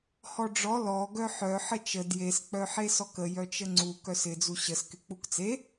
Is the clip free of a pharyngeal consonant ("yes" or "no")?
no